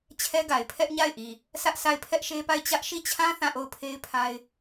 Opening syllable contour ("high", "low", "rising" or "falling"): high